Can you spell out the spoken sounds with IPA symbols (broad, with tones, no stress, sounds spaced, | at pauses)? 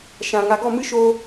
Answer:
ʃ ã˨ ŋ a˨ ɡ ɔ˦˨ m ɨ˦ ʃ oː˧